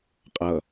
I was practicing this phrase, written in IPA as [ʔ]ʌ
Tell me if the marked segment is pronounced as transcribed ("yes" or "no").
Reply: no